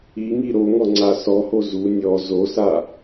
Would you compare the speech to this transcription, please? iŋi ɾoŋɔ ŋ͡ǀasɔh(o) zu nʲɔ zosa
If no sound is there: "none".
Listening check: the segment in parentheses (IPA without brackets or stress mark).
o